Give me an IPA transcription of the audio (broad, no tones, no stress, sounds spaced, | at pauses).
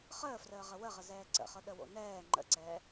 χ əː f r əː ʁ ə w ə ʁ ə z ɛː ǀ ə̰ χ ɤ ɗ ə w o̰ n ɛː ŋ͡ǃ ə̰ ǀ ɛː